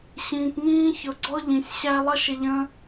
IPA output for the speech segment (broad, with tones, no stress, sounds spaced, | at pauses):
ɕ ĩː˨ k ŋ ĩː˦ ç ʊ˨˦ ɡ͡ǀ ɔ˦ ʎ ĩ˨ sʲ ɕ æ˦ lˠ ʌ˦ ʃ ɪ˧ ʎ ə̃ː˦